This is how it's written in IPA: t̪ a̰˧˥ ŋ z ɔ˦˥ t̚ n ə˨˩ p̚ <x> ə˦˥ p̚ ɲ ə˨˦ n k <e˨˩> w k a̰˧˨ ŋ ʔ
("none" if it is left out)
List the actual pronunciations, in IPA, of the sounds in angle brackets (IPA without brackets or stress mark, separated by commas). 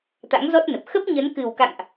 x, ɨ˨˩